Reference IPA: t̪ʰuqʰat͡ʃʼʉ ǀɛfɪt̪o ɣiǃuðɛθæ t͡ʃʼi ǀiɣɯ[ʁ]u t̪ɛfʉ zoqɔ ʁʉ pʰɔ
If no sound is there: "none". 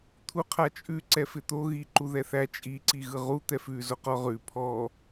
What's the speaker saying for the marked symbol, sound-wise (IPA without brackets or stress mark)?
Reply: ʁ